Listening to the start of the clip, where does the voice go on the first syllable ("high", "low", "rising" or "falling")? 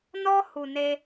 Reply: high